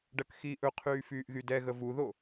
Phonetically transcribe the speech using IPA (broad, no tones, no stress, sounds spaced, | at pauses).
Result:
ɖ ɜ k x iː ʔ ɵ qʰ yː f yː ʔ ɣ y d ɛ ɣ ə v u ð o